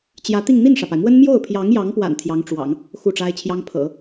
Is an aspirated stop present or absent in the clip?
present